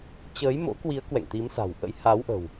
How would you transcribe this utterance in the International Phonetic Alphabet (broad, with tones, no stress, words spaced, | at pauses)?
t͡ɕəː˨˦jmo̰˧˥kwi˨˦ə̯ kwɛ̰˧˨ŋt̪i˨˦msa̤˨˩wʔə̰˧˥j ha˨˦wʔə̤˨˩w